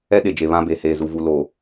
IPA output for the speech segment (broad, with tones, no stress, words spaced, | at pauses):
ɛ˦ ɗe˨d͡ʒe˨βã˦be˨ heː˨zu˨vu˨ lo˨